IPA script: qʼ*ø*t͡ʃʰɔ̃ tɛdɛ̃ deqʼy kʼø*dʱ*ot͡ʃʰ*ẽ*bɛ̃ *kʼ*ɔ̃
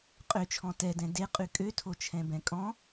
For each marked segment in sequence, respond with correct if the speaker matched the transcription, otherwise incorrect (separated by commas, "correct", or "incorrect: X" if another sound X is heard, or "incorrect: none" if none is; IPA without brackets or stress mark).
correct, incorrect: tʰ, incorrect: ɛ̃, correct